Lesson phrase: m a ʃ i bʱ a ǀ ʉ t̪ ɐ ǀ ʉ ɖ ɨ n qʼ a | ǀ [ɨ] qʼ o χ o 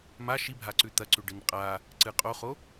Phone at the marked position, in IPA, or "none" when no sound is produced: ɨ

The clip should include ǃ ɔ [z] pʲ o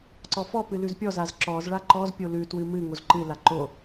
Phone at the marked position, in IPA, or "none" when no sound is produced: z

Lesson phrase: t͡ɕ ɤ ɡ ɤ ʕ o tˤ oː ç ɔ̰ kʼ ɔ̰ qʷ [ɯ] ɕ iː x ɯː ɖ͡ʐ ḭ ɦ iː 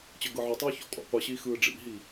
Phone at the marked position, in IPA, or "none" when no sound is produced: ɯ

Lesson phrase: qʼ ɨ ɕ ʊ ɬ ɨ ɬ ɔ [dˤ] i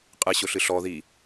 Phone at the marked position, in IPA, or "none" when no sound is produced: ð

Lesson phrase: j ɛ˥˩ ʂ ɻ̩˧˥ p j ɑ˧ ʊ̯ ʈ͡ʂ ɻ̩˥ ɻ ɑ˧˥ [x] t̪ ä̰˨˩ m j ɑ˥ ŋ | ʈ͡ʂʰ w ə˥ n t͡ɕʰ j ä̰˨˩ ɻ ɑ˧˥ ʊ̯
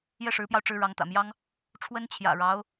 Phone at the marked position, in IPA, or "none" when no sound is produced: ŋ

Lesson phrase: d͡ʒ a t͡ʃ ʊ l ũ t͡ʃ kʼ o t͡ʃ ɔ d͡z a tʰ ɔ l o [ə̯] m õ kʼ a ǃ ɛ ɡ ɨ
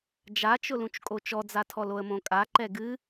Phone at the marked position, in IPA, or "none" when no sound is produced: ə̯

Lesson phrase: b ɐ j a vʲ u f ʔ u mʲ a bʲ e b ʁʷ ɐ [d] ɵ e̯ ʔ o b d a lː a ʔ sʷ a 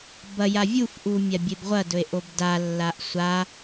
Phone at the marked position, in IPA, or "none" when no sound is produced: d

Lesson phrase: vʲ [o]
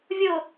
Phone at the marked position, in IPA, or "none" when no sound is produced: o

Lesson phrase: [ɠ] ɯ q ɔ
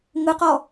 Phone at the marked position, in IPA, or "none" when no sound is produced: ŋ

